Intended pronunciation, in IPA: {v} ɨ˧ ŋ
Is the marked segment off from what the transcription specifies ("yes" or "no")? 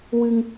yes